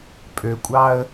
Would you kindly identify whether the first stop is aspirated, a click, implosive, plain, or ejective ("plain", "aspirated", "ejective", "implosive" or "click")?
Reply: ejective